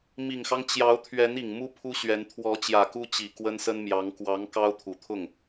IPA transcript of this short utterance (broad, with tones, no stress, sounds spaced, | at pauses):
m i˨˩ ŋ x ɑ˦ ŋ t͡ɕ j ɑ˧˥ ʊ̯ t̪ʰ ɥ ɛ˧˥ n i˨˩ ŋ m u˥ pʰ u˥ ɕ ɥ ɛ˧˥ n t̪ʰ w ɔ˧˥ t͡ɕ j ä˨˩ k u˥ t͡ɕ i˨˩ k w ə˥ n s ə˥ n m j ɑ˧˥ ŋ k w ɑ˧˥ ŋ k ɑ˥ ʊ̯ t̪ʰ u˨˩ t̪ʰ ʊ˥˩ ŋ